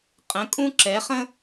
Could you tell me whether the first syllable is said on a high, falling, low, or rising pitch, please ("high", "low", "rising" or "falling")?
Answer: rising